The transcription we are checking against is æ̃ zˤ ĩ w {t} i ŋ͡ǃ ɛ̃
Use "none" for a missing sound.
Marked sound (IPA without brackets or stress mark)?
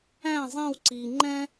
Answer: ǀ